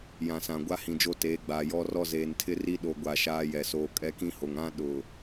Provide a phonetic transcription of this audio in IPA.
jã˨sã˨ɡʷa˦ hĩ˨d͡ʒo˦teː˨˦ɡ͡baː˨ jɔ˦rɔ˦ zeː˨ntʰɪ˦ri˦ ɗo˦ɡʷa˦˨ʃaː˦jɛ˨ soː˨kʼɛ˦kĩ˦ho˨ŋ ã˦ ɗʊ˨

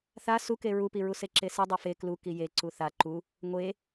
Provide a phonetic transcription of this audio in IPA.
θa suke ɹupiɹu seǁesi dˤufe klu kije ǀuθa ǃu | ŋʷe

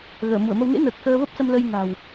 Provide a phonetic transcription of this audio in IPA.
ɣəː˧˩mu˧˩ə̯mə˧w nḛ˧˥nəː˨˩k̚ xəː˧və˦˥p̚sə˧m lə˧j na̤˨˩w

